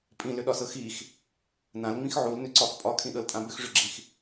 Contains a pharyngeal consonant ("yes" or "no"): yes